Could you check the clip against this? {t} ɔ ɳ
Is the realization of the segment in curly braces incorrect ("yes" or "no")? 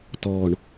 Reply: no